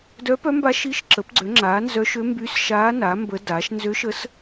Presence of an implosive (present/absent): absent